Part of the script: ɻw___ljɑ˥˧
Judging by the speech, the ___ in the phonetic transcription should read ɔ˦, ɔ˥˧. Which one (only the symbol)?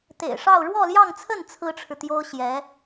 ɔ˥˧